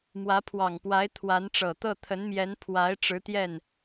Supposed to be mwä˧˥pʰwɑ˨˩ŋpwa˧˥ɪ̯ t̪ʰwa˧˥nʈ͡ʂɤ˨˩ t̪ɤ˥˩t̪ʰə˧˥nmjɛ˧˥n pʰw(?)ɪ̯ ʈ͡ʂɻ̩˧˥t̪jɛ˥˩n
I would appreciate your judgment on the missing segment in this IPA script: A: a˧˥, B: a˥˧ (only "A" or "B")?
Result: A